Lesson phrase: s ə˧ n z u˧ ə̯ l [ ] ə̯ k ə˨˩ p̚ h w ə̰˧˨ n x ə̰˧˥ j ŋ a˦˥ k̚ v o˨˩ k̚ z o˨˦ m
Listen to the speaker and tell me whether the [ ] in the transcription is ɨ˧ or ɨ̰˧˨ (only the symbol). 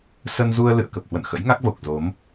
ɨ̰˧˨